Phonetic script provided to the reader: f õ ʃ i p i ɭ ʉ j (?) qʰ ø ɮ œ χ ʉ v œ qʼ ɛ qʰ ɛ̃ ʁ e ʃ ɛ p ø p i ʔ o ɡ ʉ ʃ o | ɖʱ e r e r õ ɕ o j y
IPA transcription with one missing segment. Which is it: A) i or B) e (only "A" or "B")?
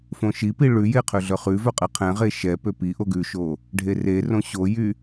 B